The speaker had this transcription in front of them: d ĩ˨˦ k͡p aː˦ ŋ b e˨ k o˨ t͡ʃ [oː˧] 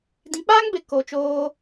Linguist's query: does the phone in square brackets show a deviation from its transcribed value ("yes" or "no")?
no